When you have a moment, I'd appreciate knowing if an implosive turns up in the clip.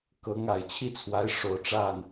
no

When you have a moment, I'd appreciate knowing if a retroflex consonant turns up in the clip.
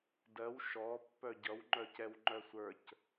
no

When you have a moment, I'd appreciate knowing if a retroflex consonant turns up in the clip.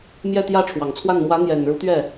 yes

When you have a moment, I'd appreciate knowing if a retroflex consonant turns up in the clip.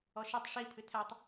yes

